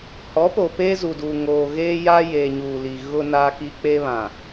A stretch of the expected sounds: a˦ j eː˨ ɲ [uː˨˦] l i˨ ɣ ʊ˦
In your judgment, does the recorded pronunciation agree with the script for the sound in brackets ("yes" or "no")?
no